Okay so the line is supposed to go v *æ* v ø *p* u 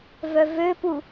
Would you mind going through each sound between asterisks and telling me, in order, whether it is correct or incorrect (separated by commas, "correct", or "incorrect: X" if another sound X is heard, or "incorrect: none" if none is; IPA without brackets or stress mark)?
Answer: incorrect: œ, correct